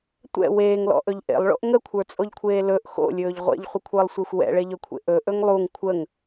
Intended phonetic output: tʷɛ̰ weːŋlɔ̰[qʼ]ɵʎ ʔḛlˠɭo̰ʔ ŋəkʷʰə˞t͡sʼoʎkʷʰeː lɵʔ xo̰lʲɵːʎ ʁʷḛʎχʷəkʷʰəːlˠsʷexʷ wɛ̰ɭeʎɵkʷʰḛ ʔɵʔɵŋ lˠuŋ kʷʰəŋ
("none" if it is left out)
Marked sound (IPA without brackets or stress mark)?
ʔ